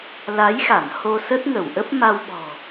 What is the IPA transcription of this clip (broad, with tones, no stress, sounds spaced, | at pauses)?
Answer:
l a˨˦ j x a˧˩ n h o˧ s ə˦˥ t̚ ŋ ə˧˩ w ʔ ə˦˥ p̚ m a˧ w ɓ ɔ̤˨˩